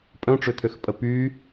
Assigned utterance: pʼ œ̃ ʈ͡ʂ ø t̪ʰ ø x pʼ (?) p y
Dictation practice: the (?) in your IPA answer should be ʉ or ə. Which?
ə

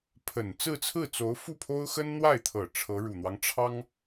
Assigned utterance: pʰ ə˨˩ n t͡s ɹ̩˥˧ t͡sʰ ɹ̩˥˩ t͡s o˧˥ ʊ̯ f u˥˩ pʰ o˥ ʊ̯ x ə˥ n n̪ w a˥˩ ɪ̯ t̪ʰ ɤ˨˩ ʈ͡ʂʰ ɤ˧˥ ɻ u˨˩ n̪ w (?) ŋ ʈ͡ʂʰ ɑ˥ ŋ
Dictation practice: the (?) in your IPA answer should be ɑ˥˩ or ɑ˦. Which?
ɑ˦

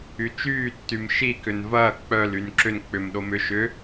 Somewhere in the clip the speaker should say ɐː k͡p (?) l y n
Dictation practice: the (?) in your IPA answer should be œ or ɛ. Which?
œ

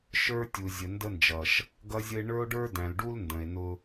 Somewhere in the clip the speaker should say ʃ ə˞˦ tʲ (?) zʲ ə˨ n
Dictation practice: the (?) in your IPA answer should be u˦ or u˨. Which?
u˨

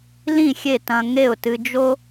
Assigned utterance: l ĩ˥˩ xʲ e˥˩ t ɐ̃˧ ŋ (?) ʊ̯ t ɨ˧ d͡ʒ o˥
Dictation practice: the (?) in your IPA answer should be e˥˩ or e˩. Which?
e˥˩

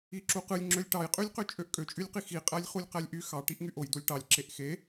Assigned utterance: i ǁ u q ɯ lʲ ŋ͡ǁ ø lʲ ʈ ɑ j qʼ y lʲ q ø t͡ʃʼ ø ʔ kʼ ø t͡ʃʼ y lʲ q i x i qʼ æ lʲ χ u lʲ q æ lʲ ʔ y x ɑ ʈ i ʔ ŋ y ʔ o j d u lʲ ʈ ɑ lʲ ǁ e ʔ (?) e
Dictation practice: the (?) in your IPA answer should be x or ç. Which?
x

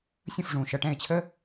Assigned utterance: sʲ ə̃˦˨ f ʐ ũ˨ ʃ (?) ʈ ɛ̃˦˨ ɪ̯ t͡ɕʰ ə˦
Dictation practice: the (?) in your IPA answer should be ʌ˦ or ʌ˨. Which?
ʌ˨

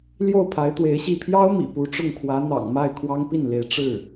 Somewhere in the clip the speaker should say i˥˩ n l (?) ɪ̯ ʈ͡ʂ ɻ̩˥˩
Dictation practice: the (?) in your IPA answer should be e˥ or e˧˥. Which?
e˧˥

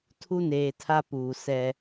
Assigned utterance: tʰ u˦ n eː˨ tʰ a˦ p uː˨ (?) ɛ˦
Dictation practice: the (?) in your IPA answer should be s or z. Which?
s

